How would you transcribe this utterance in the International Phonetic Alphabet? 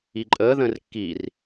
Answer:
iǃʼəːðə̃ːr kːir

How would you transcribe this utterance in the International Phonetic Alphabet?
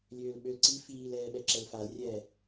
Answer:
lʲøːlɓølǀi fiːlɛːɓɛ ǁɛlfalrʲɛː

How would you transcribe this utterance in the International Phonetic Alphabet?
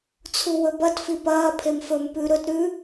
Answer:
t͡sʰuwɵbɐt fipɐː pʰemfɵm pʉ ɾɵt ɾʉ

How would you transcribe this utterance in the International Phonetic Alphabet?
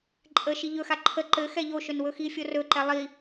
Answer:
ǃʼə ʃiʎɵxa ǃʰə ǃɘxɛ ʎoʃɵn wɵxifʲo rɵǃɛ lˠi

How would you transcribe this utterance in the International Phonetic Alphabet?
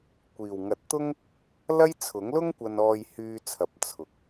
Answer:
kʷiː˨˩wŋɐ˨˥t̚t̪ʊ˥ŋ | lɐ˥jt͡sʰʊ˨˥ŋ lʊ˥ŋ kʷɐ˧nɔː˧jhyː˧t͡sʰɐ˨p̚ t͡sʰʊ˨k̚

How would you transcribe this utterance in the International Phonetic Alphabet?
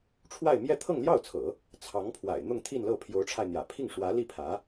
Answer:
ʈ͡ʂʰwa˥˧ɪ̯mjɛ˥˧ t̪ʰɤ˥˧ŋljɑ˥˩ʊ̯t͡sʰɤ̰˨˩˦ | t͡sʰɑ˧˥ŋpʰwa̰˨˩ɪ̯ n̪ʊ˥˧ŋt̪ʰi˥˧nlɤ˥˩ pʰjo˧˥ʊ̯ʈ͡ʂʰa˧ɪ̯n̪jä̰˨˩ pʰi˥˩ŋʂwä˧˥ li˥˩pʰä˧˥

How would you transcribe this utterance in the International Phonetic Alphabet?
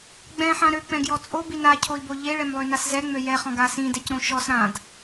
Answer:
ɡ͡bɛ̃ħã ɾøk͡pɛ̃ɡjɔ t͡sʼobi nacʰoi̯bo ʎeɭɛmlˠønas zɛŋ͡mø jɛχɔ̃ɡa sĩdɛcɾõ ʃɔs ɾãd

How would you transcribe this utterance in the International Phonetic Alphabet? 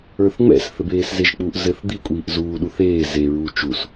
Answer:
ə˞θŋ͡mɛ̰s θɘbeːszeʒk͡puʔ zɘθ d̪i kʷʼiːʔzuː ɗuθeː zeɹuː t͡ʃus

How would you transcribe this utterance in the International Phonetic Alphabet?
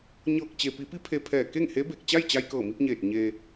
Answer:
ɲɤː˧˩k̚ t͡ɕe˩ pi˩˧pi˧˥ pʰe˧pʰɛː˧˩ ke˥˨ŋhe˧˥be˧˩k̚ t͡ɕa˥˨jt͡ɕa˧jkɤː˧˩mi˧p̚ ɲeː˧˩t̚ ɲe˧

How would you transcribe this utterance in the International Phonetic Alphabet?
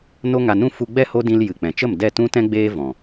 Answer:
no˦ŋa˧nũ˦ fu˧ɡ͡bɛ˦˨ ho˦dĩ˧l jɨ˨k͡pɛ̃˨t͡ʃə˦˨m dɛ˦˨tũ˦tɛ̃˦ ɡ͡beː˦vɔ̃˨

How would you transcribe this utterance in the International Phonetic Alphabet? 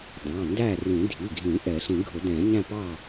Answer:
dɑ̃˩˧˩ndæ˥˨ rĩ˨˩˦dʱi˩˧˩ɡʱĩ˨˩˦ ʔɛ˨˩˦ ɬĩ˨˩˦ɡʱʊ˨˩˦dɛ̃˨˩˦ ɲæ̃˥˨pɑ˥˨

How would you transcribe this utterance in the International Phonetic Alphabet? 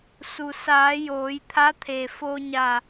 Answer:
su˩saː˩˧ joː˩˧jt̪ʰa˧˥t̪ʰe˩ fo˧ɲa˧˩

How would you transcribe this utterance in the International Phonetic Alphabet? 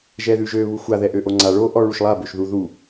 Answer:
ʒɛðʉʒø βuxʷa ðɛʔøʔoŋ͡ǀa ɭo ʔɔɭuʃlˠa bøʃðu ðu

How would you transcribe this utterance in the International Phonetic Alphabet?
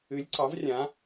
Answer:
ɨ˨˥lʲ ǀɑ˨˥vrʲã˨˥

